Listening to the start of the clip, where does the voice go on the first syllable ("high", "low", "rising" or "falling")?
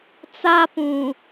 high